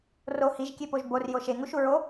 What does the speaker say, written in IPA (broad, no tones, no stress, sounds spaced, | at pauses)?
r o h i ʒ kʲ e p o ʒ b o r j o ʃ e ŋ u ʃ u ɹ o